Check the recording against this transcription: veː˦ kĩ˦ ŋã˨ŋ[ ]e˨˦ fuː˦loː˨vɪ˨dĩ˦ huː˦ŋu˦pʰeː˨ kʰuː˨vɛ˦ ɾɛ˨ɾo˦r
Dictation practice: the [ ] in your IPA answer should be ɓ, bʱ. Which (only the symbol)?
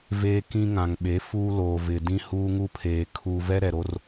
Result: ɓ